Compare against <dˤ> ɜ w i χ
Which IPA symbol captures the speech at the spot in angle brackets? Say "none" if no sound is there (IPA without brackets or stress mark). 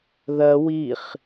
ð